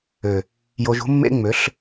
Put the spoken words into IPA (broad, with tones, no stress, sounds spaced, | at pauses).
ø˨ | j o˧ ʒ ṳ˦ mː ḛ˦ ŋ͡m ø˨˦ ɬ